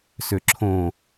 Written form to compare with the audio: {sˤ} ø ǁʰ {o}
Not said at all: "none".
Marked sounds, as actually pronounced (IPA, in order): s, õ

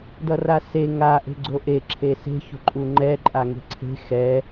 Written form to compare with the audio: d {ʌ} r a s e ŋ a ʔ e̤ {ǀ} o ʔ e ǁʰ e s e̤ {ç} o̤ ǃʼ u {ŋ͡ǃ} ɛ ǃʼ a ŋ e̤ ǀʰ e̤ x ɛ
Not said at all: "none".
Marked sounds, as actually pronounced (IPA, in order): ʌ, ɡ͡ǀ, ç, ŋ͡ǃ

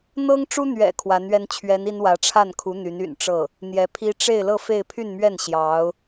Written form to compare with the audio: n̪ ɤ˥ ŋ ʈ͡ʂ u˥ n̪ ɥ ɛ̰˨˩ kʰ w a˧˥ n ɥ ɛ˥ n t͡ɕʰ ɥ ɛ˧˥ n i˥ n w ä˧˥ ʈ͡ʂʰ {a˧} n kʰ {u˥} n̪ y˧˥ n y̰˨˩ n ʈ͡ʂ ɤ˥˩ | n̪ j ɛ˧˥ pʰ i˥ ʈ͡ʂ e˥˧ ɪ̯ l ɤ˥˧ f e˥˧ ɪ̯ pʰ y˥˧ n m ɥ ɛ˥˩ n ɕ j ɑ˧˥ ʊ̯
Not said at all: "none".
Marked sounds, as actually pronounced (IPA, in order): a˥˩, u˧˥

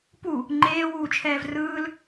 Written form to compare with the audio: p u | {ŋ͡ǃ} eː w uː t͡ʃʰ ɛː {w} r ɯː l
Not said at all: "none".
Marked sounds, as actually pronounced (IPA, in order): ŋ͡ǃ, v

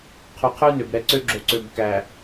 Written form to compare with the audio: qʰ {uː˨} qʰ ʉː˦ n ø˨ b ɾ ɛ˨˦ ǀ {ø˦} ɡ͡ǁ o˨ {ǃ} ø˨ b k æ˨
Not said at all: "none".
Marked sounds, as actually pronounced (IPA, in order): u˨, ø˦, ǀ

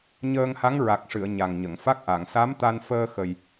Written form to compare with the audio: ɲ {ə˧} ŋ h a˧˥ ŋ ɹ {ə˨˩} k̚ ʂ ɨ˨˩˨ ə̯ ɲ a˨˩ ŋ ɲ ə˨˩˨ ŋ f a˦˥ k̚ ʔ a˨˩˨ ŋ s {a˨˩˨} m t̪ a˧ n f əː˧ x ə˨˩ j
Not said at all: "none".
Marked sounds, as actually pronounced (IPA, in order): əː˧, a˨˩, a˧˥

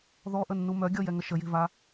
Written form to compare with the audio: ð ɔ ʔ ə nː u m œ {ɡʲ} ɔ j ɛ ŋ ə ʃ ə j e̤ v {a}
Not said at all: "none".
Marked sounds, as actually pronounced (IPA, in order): ɡʲ, a

